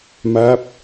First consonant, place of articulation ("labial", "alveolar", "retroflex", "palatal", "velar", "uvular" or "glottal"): labial